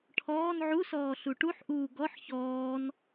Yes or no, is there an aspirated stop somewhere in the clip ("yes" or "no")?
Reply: yes